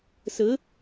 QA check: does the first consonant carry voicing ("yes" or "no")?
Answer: no